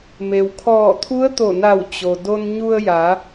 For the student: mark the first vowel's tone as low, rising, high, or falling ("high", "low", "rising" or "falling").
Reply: low